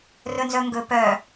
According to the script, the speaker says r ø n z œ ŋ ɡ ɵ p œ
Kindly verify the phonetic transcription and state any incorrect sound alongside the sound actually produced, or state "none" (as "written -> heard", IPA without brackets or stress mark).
ø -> ɵ